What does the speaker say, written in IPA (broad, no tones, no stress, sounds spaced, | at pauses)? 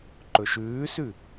ǃ ɵ ʃ ʉː s ʉ